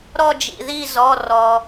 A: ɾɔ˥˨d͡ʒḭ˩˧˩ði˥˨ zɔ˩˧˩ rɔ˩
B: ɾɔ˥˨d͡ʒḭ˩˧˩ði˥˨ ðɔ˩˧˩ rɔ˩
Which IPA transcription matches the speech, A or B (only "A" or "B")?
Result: A